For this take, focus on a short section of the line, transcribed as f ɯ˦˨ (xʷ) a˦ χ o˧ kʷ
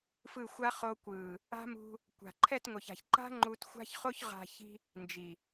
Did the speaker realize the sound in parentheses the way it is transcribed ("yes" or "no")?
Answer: yes